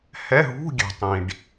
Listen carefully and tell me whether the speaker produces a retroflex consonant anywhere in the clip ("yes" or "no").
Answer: yes